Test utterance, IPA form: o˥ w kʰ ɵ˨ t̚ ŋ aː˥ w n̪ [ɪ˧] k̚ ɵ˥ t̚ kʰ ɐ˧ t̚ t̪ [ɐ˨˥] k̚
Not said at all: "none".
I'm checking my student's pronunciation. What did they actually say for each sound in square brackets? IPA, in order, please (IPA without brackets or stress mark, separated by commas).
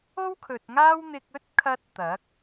ɪ˧, ɐ˨˥